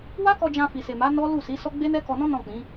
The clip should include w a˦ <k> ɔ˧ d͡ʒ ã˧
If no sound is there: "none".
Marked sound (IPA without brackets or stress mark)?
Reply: k